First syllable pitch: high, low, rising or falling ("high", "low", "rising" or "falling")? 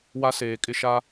high